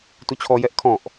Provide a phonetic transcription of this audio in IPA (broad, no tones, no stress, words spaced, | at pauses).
tut͡ɕʰɔjɛʔ kʰɔ̃ʔ